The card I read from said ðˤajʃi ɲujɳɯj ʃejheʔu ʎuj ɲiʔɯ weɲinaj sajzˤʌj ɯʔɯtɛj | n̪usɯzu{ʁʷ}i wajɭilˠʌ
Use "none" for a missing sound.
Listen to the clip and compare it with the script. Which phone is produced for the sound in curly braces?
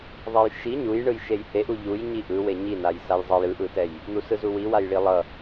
w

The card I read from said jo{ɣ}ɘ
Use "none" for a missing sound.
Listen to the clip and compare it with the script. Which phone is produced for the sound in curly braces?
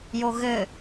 ɣ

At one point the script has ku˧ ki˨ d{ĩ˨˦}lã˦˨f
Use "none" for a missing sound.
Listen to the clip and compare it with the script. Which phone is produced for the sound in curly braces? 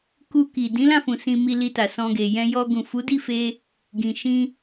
ĩ˨˦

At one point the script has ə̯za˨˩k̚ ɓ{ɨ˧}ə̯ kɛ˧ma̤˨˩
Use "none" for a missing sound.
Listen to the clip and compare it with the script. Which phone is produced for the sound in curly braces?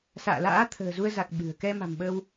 ɨ̤˨˩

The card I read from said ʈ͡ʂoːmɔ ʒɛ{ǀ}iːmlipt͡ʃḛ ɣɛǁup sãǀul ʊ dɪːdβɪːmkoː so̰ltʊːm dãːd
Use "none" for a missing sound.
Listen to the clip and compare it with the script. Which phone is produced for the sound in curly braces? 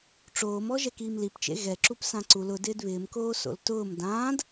k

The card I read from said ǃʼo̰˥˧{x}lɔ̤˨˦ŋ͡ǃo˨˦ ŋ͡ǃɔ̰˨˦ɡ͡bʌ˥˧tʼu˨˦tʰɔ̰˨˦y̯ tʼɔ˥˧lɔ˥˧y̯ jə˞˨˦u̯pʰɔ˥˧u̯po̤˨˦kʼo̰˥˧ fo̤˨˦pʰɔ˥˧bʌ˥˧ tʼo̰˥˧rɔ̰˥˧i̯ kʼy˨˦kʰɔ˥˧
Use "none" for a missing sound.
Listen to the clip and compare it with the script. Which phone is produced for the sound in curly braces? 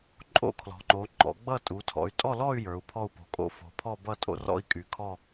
kʰ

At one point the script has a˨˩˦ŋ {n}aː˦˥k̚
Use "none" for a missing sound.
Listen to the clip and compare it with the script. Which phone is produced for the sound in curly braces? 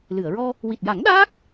ɗ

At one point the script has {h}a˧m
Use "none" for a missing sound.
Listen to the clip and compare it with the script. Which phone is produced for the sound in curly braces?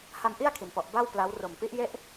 h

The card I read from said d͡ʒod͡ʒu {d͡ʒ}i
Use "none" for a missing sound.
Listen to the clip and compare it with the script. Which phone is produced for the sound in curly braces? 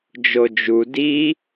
d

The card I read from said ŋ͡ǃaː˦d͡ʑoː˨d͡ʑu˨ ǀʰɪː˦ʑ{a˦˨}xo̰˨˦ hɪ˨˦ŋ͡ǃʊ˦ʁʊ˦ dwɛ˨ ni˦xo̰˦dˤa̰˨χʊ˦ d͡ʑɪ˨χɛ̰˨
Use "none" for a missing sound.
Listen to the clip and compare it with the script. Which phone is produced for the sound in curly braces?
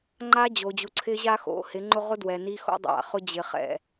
a˦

